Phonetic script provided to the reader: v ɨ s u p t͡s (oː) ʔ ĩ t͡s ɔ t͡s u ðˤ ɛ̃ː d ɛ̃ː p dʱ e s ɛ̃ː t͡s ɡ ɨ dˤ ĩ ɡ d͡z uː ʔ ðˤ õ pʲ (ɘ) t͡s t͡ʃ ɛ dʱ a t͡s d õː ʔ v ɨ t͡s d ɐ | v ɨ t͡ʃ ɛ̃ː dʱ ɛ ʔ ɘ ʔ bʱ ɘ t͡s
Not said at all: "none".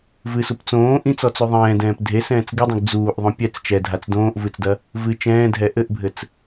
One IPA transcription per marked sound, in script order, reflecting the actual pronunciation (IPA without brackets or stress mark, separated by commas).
õː, ɛ